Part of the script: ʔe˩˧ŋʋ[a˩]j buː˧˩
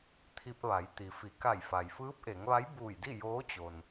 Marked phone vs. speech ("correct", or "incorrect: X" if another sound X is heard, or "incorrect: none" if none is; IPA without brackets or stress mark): incorrect: a˧˥